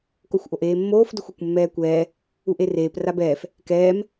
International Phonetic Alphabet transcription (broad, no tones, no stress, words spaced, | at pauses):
koxʷʔoʔeːmːoːf dʊxʷekʷmːɛːkʷɛː | uʔereːp rabɛːf | kɛːm